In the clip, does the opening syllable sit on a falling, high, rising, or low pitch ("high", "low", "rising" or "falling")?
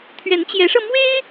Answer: rising